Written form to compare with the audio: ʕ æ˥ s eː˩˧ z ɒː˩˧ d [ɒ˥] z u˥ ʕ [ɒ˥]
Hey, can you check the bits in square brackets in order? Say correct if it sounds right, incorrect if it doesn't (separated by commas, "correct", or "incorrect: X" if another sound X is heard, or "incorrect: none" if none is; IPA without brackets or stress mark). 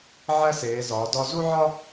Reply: incorrect: ɒ˧, correct